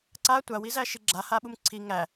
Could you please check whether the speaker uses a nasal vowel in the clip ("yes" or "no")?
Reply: no